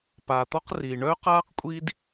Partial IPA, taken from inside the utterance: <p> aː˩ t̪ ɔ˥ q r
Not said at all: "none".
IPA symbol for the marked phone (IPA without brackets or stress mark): p